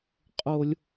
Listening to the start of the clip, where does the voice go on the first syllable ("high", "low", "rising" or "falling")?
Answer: high